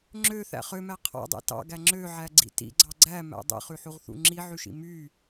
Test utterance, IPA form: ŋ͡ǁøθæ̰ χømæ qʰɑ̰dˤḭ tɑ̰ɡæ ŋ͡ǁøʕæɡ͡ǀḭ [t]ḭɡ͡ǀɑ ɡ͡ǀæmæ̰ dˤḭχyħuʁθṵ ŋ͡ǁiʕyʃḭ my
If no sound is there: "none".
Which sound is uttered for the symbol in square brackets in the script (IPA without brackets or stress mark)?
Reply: t